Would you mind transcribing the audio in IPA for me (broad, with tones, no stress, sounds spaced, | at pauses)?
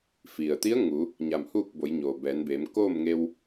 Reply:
f i˩ ə̯ t̪ i˧˥ ə̯ ŋ u˩˧ | ɲ a˧˩ m h uː˥˨ k̚ b o˩˧ j ɲ oː˩ b ɛː˩˧ n b eː˩˧ m k oː˥˨ m ŋ e˧ w